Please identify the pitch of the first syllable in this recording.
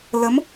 rising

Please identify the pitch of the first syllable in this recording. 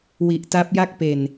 low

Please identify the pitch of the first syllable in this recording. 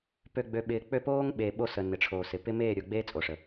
low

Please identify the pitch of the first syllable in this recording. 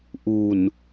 low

